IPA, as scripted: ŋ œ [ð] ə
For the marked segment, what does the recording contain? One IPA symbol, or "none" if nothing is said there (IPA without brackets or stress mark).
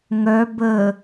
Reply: b